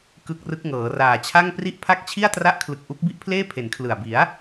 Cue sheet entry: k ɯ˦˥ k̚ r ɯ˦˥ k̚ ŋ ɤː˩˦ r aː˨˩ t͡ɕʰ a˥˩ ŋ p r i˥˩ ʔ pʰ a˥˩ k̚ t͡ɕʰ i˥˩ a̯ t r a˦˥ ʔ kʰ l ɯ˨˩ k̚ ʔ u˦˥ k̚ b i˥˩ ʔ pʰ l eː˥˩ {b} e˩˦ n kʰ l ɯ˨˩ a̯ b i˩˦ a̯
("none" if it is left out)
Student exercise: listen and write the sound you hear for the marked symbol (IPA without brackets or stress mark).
pʰ